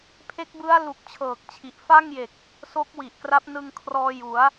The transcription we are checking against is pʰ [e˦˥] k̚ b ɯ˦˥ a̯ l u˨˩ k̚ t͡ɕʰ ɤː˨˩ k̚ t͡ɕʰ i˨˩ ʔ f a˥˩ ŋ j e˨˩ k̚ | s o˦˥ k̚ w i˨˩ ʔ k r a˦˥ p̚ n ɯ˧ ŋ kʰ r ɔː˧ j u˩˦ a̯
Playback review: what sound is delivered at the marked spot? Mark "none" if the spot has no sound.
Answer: e˦˥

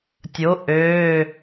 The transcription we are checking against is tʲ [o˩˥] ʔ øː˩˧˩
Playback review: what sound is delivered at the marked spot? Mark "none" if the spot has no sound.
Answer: o˩˥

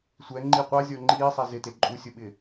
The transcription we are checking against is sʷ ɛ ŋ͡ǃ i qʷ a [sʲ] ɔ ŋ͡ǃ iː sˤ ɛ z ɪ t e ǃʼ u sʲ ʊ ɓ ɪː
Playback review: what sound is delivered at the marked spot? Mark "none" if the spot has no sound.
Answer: zʲ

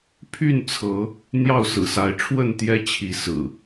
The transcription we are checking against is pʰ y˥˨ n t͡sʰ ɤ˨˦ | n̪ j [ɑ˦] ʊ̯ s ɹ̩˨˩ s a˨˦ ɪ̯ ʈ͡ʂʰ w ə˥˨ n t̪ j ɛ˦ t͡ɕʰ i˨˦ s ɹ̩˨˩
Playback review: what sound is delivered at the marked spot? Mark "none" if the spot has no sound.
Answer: ɑ˥˨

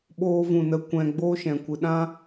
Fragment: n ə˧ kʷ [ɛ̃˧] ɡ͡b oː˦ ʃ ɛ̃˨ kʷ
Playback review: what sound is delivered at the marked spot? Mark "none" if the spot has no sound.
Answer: ɛ̃˧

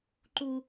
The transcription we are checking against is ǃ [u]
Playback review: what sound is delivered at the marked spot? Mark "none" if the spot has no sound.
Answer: u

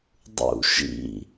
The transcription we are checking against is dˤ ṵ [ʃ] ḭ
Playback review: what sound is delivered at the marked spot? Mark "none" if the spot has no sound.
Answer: ʃ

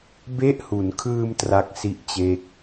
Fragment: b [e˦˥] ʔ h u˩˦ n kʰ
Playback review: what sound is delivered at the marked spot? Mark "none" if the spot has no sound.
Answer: e˦˥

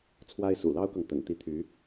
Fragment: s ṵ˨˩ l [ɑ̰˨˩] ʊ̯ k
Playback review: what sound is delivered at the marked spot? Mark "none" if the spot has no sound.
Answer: ɑ˥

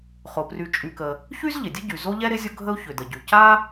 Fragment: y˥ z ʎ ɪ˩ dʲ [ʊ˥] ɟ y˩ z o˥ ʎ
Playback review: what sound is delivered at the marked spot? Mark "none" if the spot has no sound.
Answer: ə˥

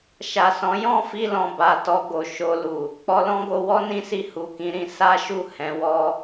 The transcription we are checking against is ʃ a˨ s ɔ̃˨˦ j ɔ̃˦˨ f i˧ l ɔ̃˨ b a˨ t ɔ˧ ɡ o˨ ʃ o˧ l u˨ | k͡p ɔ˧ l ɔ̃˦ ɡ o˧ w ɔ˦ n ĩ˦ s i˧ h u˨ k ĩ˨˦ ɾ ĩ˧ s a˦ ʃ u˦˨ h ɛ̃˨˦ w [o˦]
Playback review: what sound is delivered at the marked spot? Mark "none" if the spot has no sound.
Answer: ɔ˦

